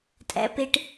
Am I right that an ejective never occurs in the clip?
no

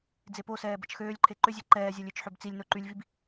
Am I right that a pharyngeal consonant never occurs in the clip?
no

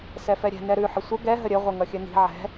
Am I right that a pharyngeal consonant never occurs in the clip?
no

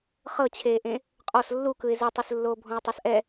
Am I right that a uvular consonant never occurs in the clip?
no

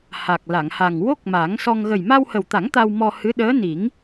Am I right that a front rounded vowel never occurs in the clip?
yes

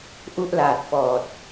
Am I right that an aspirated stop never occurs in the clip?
yes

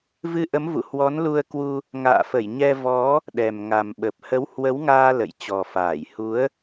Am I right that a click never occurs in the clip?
yes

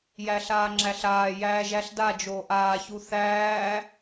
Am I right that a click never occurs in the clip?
no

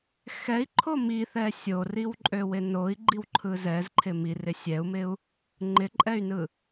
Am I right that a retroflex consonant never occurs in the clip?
yes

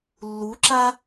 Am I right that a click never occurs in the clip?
no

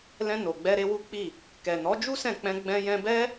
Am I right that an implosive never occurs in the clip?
yes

